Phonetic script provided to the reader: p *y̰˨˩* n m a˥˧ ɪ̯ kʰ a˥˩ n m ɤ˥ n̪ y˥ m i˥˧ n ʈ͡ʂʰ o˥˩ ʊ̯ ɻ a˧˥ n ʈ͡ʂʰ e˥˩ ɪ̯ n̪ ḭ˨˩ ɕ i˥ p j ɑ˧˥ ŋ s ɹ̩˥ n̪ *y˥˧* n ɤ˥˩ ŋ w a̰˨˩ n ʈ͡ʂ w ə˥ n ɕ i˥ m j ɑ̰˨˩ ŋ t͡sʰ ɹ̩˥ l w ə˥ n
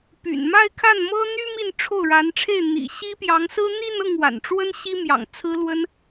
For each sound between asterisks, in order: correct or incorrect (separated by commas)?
correct, incorrect